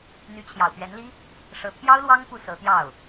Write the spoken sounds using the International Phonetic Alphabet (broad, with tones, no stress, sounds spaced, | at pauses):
n̪ y˧˥ t͡ɕʰ j ɑ˨˩ ʊ̯ p ɥ ɛ˧˥ n l i˥ | ʂ ɤ˧˥ t̪ʰ j ɑ˥ ʊ̯ l w ɑ˥ ŋ p u˥˩ s ɤ˧˥ t̪ j ɑ˥˩ ʊ̯